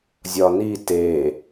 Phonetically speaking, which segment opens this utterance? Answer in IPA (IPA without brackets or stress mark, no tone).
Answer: zʲ